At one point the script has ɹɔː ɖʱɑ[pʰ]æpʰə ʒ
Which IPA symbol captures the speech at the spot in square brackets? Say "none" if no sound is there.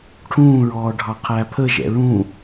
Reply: qʰ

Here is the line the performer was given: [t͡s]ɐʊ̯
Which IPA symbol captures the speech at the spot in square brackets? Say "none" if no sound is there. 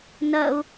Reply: n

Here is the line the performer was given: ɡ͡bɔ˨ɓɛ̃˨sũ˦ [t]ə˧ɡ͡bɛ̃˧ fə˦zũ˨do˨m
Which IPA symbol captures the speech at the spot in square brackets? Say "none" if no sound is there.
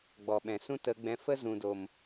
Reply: t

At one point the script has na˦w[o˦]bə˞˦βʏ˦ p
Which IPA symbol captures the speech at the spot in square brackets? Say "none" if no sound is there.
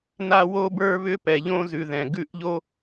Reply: o˦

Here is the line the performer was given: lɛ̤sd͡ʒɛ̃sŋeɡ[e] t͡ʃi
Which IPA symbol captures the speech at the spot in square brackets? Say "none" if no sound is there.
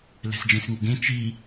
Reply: ẽ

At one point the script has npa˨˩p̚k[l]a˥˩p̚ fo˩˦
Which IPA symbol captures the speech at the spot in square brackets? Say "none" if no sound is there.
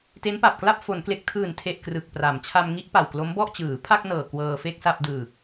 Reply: l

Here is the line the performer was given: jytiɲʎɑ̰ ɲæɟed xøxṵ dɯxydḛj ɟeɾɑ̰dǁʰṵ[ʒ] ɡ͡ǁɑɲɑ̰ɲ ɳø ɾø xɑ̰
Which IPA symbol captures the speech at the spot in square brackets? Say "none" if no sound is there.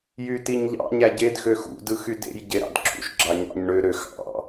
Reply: ʃ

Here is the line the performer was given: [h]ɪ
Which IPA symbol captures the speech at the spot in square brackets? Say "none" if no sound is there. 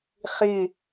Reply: χ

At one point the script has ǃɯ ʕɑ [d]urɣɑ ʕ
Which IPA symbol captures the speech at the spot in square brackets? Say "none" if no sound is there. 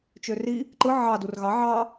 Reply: d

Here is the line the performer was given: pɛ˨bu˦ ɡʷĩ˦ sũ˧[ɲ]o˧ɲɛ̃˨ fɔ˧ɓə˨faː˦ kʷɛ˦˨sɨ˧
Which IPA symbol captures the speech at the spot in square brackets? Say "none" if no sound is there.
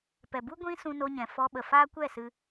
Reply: n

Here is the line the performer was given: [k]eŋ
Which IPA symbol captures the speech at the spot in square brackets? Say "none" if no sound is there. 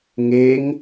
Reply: ŋ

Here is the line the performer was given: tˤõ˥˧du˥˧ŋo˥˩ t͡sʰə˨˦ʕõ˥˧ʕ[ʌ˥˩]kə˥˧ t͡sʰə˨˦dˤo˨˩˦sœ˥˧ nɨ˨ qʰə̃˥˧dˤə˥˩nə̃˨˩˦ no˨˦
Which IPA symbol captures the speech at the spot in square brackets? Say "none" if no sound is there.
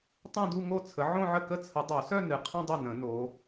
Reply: ə˥˩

